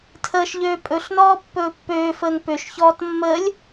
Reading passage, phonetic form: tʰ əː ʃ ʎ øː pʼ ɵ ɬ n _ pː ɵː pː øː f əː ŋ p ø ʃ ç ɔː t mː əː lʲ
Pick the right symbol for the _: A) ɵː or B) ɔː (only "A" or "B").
B